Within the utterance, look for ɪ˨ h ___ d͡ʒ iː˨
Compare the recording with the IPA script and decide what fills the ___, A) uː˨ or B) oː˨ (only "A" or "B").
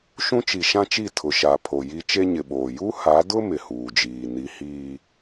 A